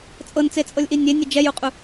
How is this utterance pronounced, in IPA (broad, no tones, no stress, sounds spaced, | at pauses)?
t͡sʼ ɤ n t͡s e t͡sʼ ɤ lʲ ʔ i nʲ e nʲ e d͡ʒ ɛ j u qʼ u